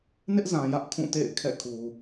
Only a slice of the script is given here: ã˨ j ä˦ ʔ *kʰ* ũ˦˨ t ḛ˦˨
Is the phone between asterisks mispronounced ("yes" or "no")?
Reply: no